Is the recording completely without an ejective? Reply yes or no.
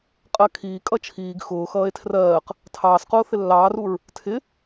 no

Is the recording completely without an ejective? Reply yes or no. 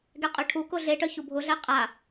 no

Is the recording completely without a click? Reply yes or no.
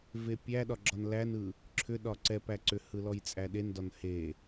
no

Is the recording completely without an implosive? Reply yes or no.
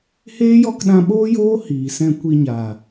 no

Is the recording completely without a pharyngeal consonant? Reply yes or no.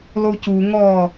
yes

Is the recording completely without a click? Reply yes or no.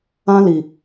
yes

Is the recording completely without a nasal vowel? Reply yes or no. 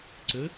yes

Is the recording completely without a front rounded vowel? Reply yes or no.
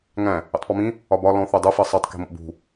yes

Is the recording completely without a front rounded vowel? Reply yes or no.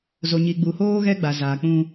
yes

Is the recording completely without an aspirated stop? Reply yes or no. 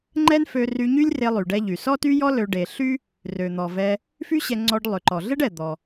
yes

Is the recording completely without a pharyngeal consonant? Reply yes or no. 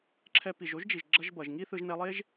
yes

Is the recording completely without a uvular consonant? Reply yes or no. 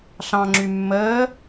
yes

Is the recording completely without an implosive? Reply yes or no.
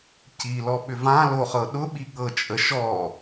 no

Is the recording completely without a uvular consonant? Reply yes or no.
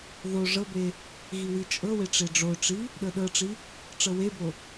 yes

